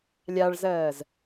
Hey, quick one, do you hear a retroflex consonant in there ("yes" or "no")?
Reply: yes